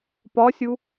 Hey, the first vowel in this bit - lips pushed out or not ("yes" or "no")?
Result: yes